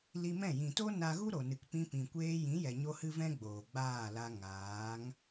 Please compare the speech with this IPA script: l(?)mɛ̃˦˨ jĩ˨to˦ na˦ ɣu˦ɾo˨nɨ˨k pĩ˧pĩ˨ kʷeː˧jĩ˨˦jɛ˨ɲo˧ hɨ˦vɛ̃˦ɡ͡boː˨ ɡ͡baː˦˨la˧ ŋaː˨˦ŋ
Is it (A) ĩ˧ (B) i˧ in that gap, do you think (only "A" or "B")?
B